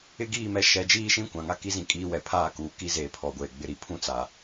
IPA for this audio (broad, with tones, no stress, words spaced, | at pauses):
ɪ˦ɡiː˦˨mɛ˦ ʃɛ˨˦ d͡ʒiː˦ʃĩ˦ kʷã˨ŋa˦ki˦ zĩ˦kʼiː˦wɛ˨ pʰaː˦˨kuː˨ ki˦zeː˨pʰɔ˨ ɡʷeː˨ɡ͡bɪ˦ɾi˨ pʰũ˦t͡sa˨